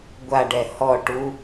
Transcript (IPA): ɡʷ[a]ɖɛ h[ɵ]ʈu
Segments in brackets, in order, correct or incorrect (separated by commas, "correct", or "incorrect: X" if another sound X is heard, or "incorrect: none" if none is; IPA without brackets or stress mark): correct, incorrect: ɔ